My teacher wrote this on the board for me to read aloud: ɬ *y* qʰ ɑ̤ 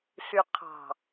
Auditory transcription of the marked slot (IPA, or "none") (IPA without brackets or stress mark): y